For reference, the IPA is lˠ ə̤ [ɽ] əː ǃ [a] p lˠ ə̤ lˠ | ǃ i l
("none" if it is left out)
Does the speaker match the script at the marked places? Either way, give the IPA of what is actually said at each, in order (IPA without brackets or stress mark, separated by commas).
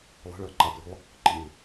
ɭ, a